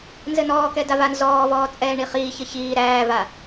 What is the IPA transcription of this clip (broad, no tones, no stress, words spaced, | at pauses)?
nzɘnɔːkɛ davanzɔːvɔː t͡sʼɛːɳiχiːçɘ çiː ɾæːva